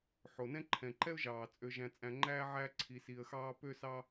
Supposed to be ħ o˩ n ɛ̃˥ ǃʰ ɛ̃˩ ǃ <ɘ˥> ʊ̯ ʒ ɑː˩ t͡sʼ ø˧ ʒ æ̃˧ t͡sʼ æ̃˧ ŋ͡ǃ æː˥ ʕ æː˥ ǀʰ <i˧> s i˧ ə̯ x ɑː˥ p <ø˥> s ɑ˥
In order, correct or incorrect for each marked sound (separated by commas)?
incorrect, correct, correct